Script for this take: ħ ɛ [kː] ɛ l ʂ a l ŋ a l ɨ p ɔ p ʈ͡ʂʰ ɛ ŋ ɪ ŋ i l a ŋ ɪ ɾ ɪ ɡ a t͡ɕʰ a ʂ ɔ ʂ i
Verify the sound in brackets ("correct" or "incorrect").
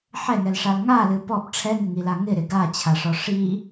incorrect